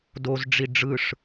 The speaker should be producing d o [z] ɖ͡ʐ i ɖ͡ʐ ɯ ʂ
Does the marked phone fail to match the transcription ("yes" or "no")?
no